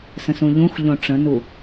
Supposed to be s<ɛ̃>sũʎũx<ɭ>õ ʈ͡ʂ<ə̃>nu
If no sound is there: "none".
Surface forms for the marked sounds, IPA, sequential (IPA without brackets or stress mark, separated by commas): ə̃, ʎ, ə̃